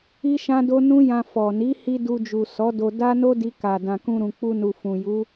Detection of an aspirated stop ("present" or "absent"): absent